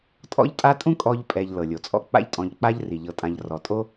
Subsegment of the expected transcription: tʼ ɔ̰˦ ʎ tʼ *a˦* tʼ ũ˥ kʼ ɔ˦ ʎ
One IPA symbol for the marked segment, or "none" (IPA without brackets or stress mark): a˦